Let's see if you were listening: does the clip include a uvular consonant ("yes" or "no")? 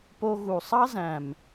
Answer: no